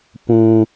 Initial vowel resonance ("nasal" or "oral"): nasal